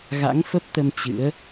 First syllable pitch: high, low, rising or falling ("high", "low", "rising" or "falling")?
rising